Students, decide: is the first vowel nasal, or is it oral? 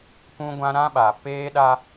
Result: nasal